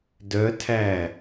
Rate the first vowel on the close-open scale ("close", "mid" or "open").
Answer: mid